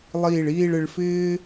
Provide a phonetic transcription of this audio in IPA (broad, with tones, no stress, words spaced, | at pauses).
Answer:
lˠiː˧˩ɭiː˥˧ɭ ɪ˧ɭfɪː˥